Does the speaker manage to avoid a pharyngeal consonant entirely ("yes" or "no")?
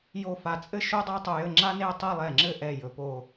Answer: yes